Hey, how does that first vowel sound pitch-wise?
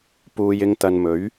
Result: low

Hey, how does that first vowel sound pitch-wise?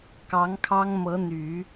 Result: rising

